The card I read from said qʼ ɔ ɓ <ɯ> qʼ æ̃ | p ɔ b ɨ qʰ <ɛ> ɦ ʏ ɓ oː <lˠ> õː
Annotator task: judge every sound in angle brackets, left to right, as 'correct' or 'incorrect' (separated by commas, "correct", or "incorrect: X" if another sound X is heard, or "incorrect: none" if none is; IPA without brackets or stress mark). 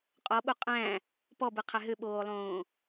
incorrect: u, incorrect: æ, correct